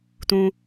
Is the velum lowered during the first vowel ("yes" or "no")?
yes